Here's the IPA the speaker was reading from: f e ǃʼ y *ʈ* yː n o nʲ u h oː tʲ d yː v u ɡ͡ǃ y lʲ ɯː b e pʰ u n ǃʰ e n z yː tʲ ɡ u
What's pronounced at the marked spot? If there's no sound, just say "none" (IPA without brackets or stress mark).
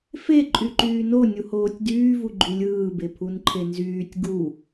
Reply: ǃ